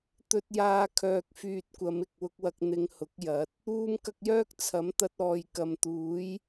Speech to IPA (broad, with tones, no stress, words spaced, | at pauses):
t̪ɵ˧t̚jaː˧ kʰœː˨k̚fyː˨t̚kʷɐ˨˧m ɪ˨k̚wʊ˧k̚wɐ˧k̚ n̪ɪ˧ŋ hʊ˨˥k̚ jɐ˨˥t̚ | uː˧mkɐ˧k̚jœː˥k̚ t͡sʰɐ˨˥mt̪ɐ˧t̚ɔː˨jkɐ˨m t̪uː˨˥j